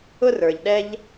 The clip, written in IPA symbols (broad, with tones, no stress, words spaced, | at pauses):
ʊ˥rə˞˩ʎ ɗɛ˥ʎ